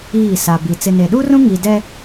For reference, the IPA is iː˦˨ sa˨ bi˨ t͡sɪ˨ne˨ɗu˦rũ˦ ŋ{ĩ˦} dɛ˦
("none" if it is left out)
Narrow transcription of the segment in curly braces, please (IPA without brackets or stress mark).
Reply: i˦